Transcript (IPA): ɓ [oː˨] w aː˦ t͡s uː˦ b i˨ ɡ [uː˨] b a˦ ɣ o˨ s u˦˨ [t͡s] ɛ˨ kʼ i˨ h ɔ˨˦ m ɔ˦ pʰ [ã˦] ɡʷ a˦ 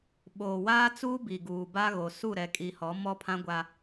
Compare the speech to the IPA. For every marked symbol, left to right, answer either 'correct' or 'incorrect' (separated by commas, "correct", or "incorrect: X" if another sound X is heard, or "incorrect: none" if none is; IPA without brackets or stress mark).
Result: correct, correct, incorrect: ɾ, correct